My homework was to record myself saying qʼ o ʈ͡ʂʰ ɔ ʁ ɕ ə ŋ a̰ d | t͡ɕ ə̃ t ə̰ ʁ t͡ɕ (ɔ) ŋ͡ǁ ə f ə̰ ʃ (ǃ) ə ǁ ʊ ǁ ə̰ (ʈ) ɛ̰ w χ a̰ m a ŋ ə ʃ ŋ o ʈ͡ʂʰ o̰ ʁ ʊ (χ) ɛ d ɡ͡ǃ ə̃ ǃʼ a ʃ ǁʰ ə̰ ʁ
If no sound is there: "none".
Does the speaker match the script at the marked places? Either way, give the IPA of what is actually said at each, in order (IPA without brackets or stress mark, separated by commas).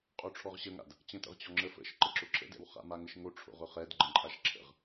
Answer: ɔ, ǃ, d, χ